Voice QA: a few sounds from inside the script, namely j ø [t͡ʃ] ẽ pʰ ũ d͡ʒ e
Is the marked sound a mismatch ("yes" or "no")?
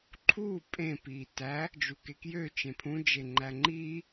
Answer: no